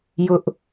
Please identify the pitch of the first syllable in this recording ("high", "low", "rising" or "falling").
high